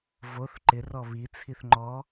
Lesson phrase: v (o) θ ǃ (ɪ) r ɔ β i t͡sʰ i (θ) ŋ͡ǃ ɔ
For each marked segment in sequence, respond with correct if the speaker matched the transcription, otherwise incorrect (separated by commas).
correct, correct, correct